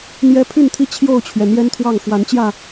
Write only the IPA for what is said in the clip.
n̪jɛ˦ pʰy˥˨nt̪ʰi˥˨ t͡ɕʰjo˥˨ʊ̯t͡ɕʰɥɛ˩ n̪jɛ˦nt̪ʰwɑ˥˨ŋ xwa˨˦nt͡ɕjä˥˨

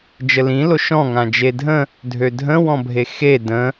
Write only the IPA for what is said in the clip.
d͡ʒəlĩ loʃɔ̃ ŋãd͡ʒedʱə̃ | dʱødʱə̃ wɔ̃bʱexe də̃

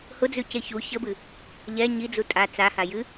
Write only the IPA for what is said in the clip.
hʊd͡zʉce çu çəbɨ | ʎɛ ɲid͡zu tʼa t͡saha jɨ

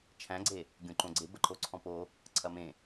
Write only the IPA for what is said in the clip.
t͡ʃʰæ̃ɡ͡ǀe | ɡʲõǃõɡ͡ǀe bəǃoǀʰɔ̃po | ǀʰɐmẽ

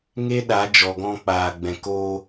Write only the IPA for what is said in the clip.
ŋe˦ɗa˨˦ d͡ʒɔ˨ɡɔ̃˧k͡paː˨ɡ͡bɛ̃˨ ko˧

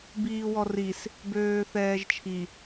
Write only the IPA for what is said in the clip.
biːwɔris | bøːθɛːʒt͡ʃʰi

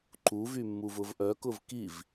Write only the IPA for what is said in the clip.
ǃuvymːuv ʊvʔœkʊv kiv

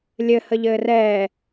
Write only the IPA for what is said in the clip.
lʲɘhə ʎɘːrɛː

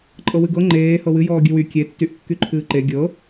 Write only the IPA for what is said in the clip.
ǃʼɤwɨɡɤ ŋ͡ǃeː hɤwɨ jɔːɡʲɨwy kʲetːyʔ kːyǃʰɨːǃe ɡʲɤ

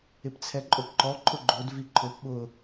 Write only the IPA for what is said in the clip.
ɪpt͡sʰɛǃʼopǃɔ ǃʰʊɡ͡ǃod viǃʰʊp ɓʊ

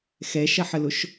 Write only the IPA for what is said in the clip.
xɛʃɐħəlʊʃ

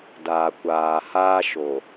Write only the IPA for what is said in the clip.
daː˨kʷaː˨ haː˦ʃo˨

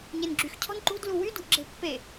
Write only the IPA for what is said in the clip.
ɲenɡ͡ǁyx cʰɔ̤nǃṳd luwy dṳʔɡ͡ǁe̤pːe

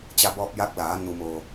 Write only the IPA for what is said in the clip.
t͡ɕa˧bɔː˧p̚jaː˧˥k̚laː˩˧ nu˩moː˩

